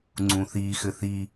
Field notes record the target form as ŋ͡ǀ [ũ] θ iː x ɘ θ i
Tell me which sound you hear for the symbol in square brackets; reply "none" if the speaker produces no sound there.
ũ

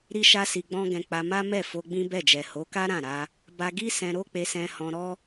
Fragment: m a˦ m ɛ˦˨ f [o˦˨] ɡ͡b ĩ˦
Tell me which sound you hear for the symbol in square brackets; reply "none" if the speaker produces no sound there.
o˧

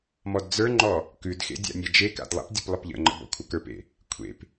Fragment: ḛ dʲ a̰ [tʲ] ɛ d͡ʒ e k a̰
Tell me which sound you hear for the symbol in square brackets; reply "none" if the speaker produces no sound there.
nʲ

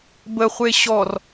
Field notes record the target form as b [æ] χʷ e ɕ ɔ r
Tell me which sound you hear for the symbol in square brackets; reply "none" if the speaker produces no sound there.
ə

